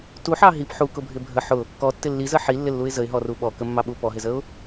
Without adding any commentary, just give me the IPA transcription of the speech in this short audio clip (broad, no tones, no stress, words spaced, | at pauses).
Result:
tuħɑ ɦip ħukʊbʱɪ bʱə ħʊ | kɔtːɪ lːizə ħilːɪlːuɪ̯ zəɪ̯ɦɔru ɓɔkəmːɑɓu pɔɦɪzəʊ̯